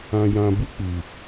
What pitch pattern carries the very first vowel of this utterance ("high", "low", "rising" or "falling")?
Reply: low